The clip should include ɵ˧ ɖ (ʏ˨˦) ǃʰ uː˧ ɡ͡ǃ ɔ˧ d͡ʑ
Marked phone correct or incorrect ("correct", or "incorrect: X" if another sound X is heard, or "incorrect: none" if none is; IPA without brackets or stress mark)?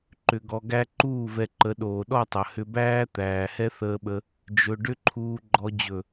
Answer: incorrect: ʏ˦